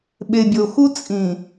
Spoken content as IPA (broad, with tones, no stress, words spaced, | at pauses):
ɓe˨bʲo˨xu˦ t͡sʼĩ˨